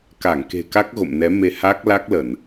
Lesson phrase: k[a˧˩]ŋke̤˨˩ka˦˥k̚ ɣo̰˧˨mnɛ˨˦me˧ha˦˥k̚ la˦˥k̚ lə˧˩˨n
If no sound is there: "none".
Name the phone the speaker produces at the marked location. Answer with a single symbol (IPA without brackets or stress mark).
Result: a˧˩